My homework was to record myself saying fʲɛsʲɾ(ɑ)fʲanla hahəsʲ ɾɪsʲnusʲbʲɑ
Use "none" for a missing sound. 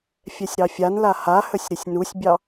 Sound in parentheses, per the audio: ɑ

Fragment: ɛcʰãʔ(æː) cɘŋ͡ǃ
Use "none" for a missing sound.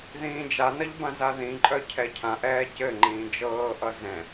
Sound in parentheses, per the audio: ɛː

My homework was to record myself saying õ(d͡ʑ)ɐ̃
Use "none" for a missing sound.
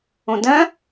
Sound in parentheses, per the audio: d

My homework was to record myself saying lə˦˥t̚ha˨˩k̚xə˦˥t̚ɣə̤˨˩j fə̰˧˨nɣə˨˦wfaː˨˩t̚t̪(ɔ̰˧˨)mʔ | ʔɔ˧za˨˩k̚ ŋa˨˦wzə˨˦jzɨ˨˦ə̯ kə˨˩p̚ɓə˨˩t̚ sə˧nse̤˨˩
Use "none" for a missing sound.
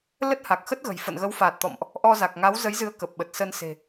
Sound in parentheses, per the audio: ɔ̰˧˨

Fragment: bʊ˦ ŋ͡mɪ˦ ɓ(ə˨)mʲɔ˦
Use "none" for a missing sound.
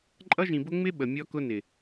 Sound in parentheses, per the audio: ə˨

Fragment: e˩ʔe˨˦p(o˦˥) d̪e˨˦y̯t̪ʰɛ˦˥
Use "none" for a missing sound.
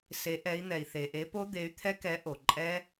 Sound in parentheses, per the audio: o˦˥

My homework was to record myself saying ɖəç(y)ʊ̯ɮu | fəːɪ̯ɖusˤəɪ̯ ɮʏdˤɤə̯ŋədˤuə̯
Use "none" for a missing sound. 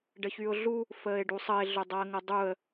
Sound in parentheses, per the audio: y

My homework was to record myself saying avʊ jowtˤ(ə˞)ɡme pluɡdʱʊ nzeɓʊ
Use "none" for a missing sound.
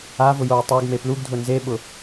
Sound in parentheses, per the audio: ə˞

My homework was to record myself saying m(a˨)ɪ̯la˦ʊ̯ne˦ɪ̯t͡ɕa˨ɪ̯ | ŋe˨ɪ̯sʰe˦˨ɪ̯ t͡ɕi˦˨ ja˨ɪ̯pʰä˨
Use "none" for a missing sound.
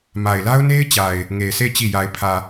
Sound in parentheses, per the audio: a˨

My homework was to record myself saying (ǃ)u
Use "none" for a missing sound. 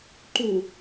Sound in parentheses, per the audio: ǃ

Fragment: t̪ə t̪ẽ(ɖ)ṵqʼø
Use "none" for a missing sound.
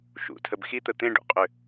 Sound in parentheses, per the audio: ɖ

